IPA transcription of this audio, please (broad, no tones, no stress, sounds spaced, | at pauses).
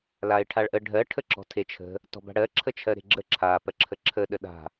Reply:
l a ɪ̯ ʈʰ a ɭ ʔ ə ɖʱ ɜ ʈʰ ə ǁ ɔ̤ tʰ e t͡ʃʰ ə̤ | t ɔ̤ b a̤ ɽ ɜ ǁʰ ə t͡ʃʰ ɜ ɾ e̤ ɡ͡ǁ ə ǁʰ a p ɜ ǁʰ ə ǁʰ ə ɗ ə ɗ a̤